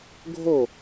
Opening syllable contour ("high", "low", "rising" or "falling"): falling